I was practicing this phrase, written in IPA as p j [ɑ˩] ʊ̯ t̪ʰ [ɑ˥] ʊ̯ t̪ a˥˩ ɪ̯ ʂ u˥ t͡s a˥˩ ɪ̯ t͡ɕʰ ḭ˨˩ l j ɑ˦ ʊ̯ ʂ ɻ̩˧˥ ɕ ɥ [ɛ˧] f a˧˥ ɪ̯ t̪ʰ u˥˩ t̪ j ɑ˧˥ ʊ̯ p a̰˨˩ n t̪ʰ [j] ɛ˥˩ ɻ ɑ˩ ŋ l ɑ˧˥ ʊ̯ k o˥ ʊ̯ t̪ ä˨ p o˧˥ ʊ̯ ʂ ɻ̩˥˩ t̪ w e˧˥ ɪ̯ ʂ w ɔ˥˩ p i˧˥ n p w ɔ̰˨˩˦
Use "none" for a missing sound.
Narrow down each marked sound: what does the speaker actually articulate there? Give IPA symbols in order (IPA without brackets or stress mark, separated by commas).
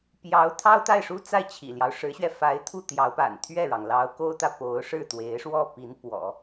ɑ˧˥, ɑ˥, ɛ˧, ɥ